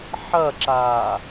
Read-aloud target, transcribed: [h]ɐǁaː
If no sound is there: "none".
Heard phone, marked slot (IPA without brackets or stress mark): ħ